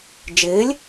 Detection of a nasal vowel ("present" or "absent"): absent